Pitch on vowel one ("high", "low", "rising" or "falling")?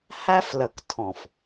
high